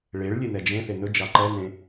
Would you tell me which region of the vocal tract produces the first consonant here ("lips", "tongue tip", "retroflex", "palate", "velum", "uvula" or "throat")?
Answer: retroflex